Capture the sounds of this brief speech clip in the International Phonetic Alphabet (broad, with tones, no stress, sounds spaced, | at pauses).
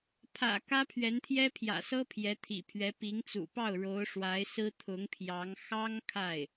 pʰ ä̰˨˩ k ä˥ pʰ ɥ ɛ˧˥ n t̪ʰ j ɛ˥ pʰ j ä̰˨˩ s ɤ˥ pʰ j ɛ˧˥ t̪ʰ ḭ˨˩ pʰ ɥ ɛ˧˥ p i˧˥ ŋ t͡s ṵ˨˩ p ɑ˥˩ ʊ̯ ɻ o˧˥ ʊ̯ ʂ w a˧˥ ɪ̯ s ɹ̩˥ t̪ʰ ʊ˧˥ ŋ pʰ j ɑ˧˥ ŋ x ɑ˥ ŋ kʰ a˥˩ ɪ̯